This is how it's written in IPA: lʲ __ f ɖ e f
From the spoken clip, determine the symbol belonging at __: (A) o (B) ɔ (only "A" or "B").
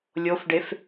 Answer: A